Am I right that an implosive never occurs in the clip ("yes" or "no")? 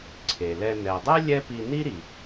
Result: yes